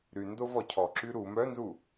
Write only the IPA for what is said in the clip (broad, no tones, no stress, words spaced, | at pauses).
ɾy ndovɔcʰɔǁy ɾu mœnzu